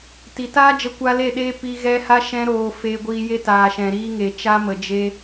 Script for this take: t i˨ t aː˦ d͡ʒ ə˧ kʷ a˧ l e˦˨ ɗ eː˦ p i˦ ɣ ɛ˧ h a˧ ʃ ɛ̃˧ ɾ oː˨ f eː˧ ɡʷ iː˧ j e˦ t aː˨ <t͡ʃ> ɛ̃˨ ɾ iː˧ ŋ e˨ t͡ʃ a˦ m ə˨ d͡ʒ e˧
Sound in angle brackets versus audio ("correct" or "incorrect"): incorrect